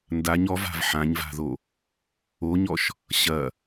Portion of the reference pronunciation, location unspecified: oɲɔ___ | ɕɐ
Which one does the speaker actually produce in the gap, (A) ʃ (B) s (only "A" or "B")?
A